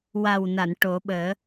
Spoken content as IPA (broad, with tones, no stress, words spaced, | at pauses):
wa˨˩wna˨˩˨n ʈo˨˩˦ ɓəː˨˩˦